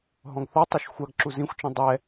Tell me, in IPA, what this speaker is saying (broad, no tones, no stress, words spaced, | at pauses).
ɦɔ̃ɡθɔtˤʉʃ xʷaɡǁu zĩxʷt͡ʃĩ dˤɛ